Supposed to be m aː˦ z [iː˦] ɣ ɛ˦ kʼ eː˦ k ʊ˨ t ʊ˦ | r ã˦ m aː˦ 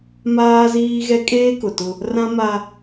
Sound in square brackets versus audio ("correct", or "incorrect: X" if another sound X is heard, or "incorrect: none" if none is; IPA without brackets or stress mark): correct